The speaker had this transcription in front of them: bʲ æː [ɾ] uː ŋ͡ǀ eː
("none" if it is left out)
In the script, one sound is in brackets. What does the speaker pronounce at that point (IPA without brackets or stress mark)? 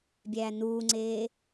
n